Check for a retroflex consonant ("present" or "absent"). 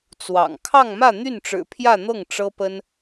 present